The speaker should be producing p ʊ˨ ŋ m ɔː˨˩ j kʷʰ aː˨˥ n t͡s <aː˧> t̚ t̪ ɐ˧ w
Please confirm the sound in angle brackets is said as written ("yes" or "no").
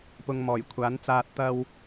yes